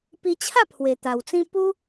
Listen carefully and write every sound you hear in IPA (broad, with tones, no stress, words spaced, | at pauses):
pi˧t͡ɕʰa˥˧ pʰwe˨˩ t̪a˨˩wt͡sĩ˦ pu˦